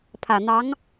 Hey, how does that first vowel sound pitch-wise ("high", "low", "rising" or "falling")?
low